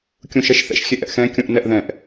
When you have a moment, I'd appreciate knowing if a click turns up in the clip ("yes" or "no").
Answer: no